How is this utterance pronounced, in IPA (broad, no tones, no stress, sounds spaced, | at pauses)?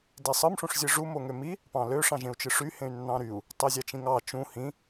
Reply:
d e sˤ ɯ m ʂ ũ ʂ zʲ ɯ ʐ u m o ŋ ø m i | p ɑ̃ l ø ʂ ɑ̃ ʒ ẽ u̯ t͡ʃ ɯ ʂ y h ẽ y̯ nː ɑ̃ ɾ y u̯ | tˤ i zʲ ɑ t͡ʃ ĩ ŋ ɑ t͡ʃ ũ h ĩ